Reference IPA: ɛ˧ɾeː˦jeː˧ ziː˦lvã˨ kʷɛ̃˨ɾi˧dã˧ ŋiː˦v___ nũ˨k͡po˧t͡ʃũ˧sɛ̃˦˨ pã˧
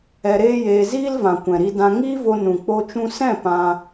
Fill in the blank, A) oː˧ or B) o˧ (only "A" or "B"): B